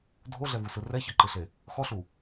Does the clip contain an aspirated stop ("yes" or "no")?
no